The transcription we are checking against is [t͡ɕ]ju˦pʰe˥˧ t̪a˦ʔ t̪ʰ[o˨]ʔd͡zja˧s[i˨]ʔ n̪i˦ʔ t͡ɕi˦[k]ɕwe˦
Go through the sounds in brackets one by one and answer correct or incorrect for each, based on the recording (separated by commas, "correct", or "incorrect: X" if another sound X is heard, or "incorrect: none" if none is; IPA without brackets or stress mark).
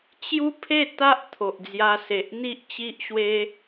correct, correct, incorrect: e˨, incorrect: ʔ